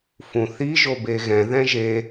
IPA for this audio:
fũθi ʒobeɣɛ̃ ðɛ̃ʒe

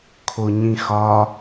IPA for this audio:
kʰoɲĩxɒ

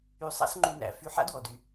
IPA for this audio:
y˧sˤa̰˥s ŋ͡ǃy˧næ̰˧ fy˧ħa̰˥dwɔ˩dy˩

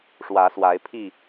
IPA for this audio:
ʂwä˨˦swa˨˦ɪ̯pʰi˥˨

